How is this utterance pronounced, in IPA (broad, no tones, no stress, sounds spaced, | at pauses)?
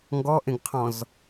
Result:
ŋ ɡ ɔ ʔ ẽ ɡ qʰ ɔ̃ z